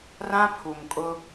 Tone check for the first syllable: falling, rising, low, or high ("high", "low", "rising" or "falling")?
high